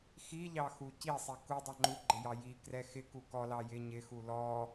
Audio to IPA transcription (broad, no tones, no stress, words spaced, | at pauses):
xiʎɑ xucisˤi ku dˤɑŋ͡ǃuɡ͡ǃɪ jɑjikrɛ xɪku kɔlɑ jɪ ɲɪxu lɔ